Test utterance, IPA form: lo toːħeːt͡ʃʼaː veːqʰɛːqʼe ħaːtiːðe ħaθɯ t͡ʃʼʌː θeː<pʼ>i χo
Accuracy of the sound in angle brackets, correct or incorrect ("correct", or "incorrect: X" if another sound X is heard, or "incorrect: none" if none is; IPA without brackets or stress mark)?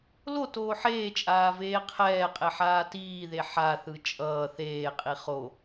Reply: incorrect: qʼ